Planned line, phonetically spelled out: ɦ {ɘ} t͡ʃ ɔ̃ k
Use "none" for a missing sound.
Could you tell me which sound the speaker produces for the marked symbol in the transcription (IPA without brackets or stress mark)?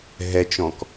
ɛ